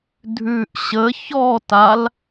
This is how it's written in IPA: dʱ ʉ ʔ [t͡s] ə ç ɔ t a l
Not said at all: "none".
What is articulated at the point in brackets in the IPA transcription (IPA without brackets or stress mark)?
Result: ɕ